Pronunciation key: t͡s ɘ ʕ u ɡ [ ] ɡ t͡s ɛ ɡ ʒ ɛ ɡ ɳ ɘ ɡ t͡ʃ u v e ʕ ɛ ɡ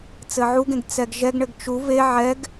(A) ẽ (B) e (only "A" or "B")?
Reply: A